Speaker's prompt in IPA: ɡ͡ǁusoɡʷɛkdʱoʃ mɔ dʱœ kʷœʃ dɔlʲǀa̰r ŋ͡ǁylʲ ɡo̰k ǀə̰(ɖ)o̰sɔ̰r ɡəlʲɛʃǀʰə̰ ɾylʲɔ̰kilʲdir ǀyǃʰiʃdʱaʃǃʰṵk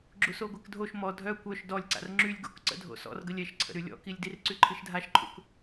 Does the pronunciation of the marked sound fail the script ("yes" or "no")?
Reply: yes